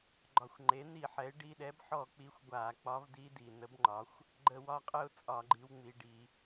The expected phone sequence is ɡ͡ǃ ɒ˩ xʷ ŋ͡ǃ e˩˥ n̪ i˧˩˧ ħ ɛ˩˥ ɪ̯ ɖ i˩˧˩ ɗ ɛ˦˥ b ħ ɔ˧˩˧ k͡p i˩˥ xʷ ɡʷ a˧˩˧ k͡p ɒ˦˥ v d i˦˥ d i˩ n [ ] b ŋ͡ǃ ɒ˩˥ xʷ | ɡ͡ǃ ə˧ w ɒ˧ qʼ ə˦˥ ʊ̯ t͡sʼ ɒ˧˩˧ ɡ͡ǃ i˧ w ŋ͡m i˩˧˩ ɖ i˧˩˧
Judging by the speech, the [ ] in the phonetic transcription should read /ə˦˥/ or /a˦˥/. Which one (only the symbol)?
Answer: ə˦˥